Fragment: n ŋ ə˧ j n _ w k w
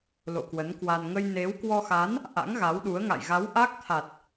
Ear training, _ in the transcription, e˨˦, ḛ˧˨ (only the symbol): e˨˦